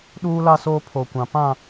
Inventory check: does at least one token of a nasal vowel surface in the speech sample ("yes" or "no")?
yes